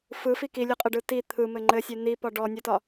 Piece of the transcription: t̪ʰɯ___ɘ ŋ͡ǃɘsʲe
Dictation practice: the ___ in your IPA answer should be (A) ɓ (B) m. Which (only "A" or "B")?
B